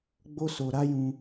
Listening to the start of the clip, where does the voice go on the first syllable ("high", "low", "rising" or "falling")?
high